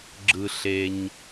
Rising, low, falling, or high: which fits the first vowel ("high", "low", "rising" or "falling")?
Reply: low